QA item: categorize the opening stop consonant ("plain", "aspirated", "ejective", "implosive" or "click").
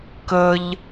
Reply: plain